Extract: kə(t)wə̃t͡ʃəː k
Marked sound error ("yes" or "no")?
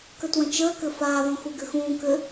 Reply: no